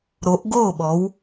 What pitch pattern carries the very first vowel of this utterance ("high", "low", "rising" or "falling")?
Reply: rising